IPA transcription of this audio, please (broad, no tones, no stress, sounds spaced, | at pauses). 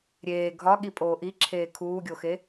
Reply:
ɾʲ eː ɡʱ ɒ ɠ i pʼ oː ʔ i ǁʰ eː kʰ uː ɡʲ o x e